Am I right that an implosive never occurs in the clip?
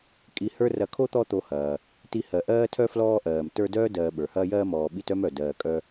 no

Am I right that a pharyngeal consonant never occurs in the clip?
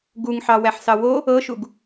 no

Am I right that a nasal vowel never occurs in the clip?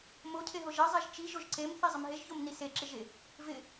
yes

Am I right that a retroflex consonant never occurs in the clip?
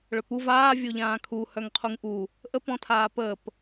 no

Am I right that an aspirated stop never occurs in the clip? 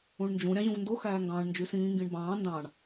yes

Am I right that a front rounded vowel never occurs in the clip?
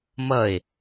yes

